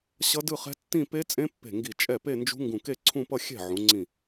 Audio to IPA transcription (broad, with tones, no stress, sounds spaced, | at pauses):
ɕ ʌ˦˥ d ɯ˥˧ χ ɛ̤˦˥ tː ĩ˥˧ p e˦˥ t͡sʼ ẽ˦˥ pː e̤˧˩ ŋ ɡ i˧˩ t͡ʃʼ ɛ˥˩ p e˥˧ n d͡ʒ ṳ˦˥ ŋ ɡ ũ˧˩ k e˥˧ ǀʰ ũ˥˧ p ʌ˥˧ xʲ ɛ̤˥˩ ʕ ũ˩˧ ŋ͡ǀ ĩ˧˩